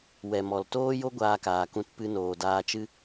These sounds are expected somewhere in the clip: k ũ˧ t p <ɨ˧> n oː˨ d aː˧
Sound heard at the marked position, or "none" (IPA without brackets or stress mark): ɨ˧